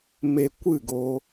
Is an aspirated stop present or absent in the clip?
absent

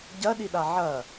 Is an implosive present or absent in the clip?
present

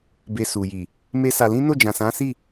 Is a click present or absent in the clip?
absent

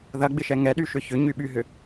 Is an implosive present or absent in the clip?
present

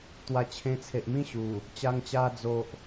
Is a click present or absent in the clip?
absent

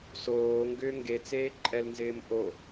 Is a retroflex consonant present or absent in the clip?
absent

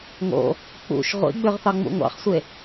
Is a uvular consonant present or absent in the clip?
present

